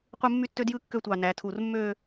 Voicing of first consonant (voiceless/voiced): voiceless